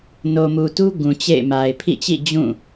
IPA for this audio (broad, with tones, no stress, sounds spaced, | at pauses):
n o˨ m u˨ t u˦ ɡ ũ˨ t͡ɕ ḛ˦˨ ɪ̯ m a˨ ɪ̯ pʰ ḭ˦˨ t͡ɕ ḭ˦˨ d͡ʑ ũ˦˨